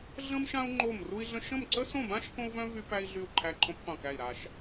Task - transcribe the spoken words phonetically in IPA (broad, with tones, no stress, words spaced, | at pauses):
ɮə̃˥mʃã˥u̯ ŋ͡ǃo˥˨m ru˥i̯ɮə̃˥ ʃə̃˥˨mǀə˥sõ˥˨bã˥ʃ kõ˥u̯vœ̃˥ vy˥pæ˥i̯ ɮy˥˨u̯ǃʰæ˥˨ǃʰõ˥p qʷœ̃˥˨kæ˥˨i̯ɾa˥˨ʃ